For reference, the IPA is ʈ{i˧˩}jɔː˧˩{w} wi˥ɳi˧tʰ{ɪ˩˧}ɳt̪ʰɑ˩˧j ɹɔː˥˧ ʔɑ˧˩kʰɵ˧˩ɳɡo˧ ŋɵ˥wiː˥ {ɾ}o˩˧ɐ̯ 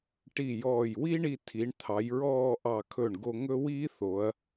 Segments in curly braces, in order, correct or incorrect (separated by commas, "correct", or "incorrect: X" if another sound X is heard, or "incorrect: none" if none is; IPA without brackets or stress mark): correct, incorrect: j, incorrect: i˩˧, incorrect: θ